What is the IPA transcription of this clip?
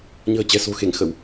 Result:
ɲ ə̤ː˨˩ t͡ɕ ɛ̤˨˩ s o̤˨˩ x e˧˩ ŋ x ə˧˩˨ w

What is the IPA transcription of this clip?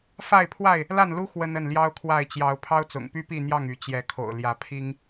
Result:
f a˥˨ ɪ̯ pʰ w a˥˨ ɪ̯ | l a˥˨ n l u˦ x w ə˦ n ə˥˨ n l j ɑ˦ ʊ̯ kʰ w a˥˨ ɪ̯ t͡ɕ j ɑ˨˦ ʊ̯ pʰ ɑ˦ ʊ̯ t͡s ʊ̰˨˩ ŋ p y˦ p i˥˨ n̪ j ɑ˥˨ ŋ y˨˦ t͡ɕ j ɛ˨˦ kʰ o̰˨˩ ʊ̯ l j ä˨˦ pʰ i˦ ŋ

